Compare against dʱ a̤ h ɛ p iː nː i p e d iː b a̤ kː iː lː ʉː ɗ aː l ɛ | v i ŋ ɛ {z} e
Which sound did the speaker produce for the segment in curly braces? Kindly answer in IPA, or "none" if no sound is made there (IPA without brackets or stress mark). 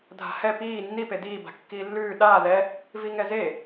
z